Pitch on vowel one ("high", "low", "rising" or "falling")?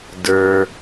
low